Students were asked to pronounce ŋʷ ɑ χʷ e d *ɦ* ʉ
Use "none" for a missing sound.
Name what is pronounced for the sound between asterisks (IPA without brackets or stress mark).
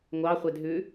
ɦ